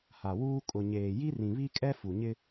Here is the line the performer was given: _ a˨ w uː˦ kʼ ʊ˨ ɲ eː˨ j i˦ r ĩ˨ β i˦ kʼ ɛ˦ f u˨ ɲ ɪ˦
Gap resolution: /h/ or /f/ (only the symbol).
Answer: h